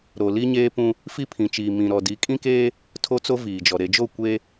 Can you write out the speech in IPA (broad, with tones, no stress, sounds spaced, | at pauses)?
ɾ o˨ l i˦ ɲ eː˦ p ũ˦ | f i˦ pʰ ĩ˨ t͡ʃ iː˨ m ĩ˨ ɾ ɔ˨ d i˨˦ kʼ ĩ˦ k eː˦ | tʰ o˦ t͡s o˦ v iː˨ d͡ʒ ɔ˨ ɾ e˨ d͡ʒ o˦˨ kʷ e˦